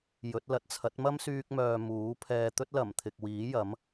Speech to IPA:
j ɵ˨˥ t̚ l ɐ˨˥ t̚ t͡sʰ ɐ˨˥ t̚ m ɐ˥ m s yː˧ k̚ m œː˨ m uː˨˥ pʰ ɛː˨ t̪ ɵ˥ t̚ l ɐ˨˩ m t̪ʰ ɪ˨ k̚ w iː˨˥ j ɐ˨˥ m

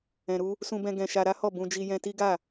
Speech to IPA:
ɛ̃˧ ɾ u˦ | s ũ˧ b ɛ̃˧ ɡ ɛ̃˧ ʃ a˧ ɾ a˦ h ɔ˦˨ b ũ˧ d͡ʒ i˧ j ɛ̃˧ t i˦ ɡ a˦˨

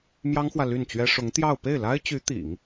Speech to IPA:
m j ɑ˥ ŋ x w ä˨ l y˥˩ n t͡ɕ ɥ ɛ˥ ʂ ʊ˧˥ ŋ t̪ j ɑ˥˧ ʊ̯ p e˥˩ ɪ̯ l a˥ ɪ̯ t͡ɕ y˧˥ t̪ ḭ˨˩˦ ŋ

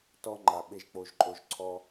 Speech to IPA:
t ɔ˧ ŋ͡ǃ a˨ ɓ e˧ ʒ k͡p o˧ ʒ ǃʼ o˧ ʒ ǀʰ ɔ˦

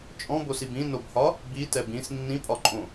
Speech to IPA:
t͡ʃʼ ɔ̃ b o s i b ĩ n o b h ɒ | b i t ɛ b ĩ s nː ĩ pʼ ɒ ǃʼ õ

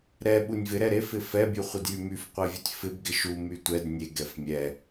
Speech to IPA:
ɾ ɛ ɓ u nʲ v ɪ ɾ ɛ ɾ e f ɪ f ɛ bʲ u χʷ ɪ d j y m y f qʷ e vʲ u tʲ f ɪ b ɡ ɪ ʃ u m y tʷ ɛ d nʲ e ɡ ɛ f mʲ ɛ

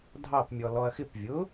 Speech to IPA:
dʱ ɑ p mʲ ɔ l ɔ ɐ̯ x ɪ p vʲ ʊ

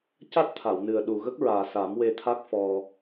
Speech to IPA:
c a˦˥ t̚ t̪ʰ a˨˩˨ w n ɨ˨˩ ə̯ ɗ u˨˩ ɣ ə˦˥ k̚ ɹ aː˨˩ s a˨˩˦ m w e˧ t̪ʰ a˦˥ k̚ f ɔ˧

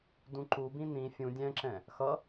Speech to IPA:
d ũ ǃ u b ĩ n ĩ fʲ ũ dʲ ɛ̃ ǁ ɛ̃ | x ʌ

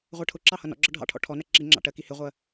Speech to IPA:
ʁʷ ɜ ʈʰ ʊ ǁ ɑ h ʌ n ɔ̰ ɡ͡ǁ ɒ ɖʱ ɑ̰ ʈʰ ɔ̰ ʈʰ ɔ n ɜ ǁ i ŋ͡ǁ ɑ̰ ʈ ɜ k i h ɪ ʁʷ ɜ

